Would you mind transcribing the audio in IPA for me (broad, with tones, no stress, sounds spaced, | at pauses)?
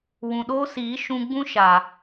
w ũ˨ ɗ oː˦ s iː˨˦ ʃ ũ˧ ɡ͡b ũ˦ ʃ a˨